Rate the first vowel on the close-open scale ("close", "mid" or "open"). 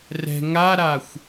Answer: mid